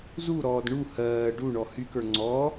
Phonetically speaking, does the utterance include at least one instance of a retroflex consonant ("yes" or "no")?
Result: yes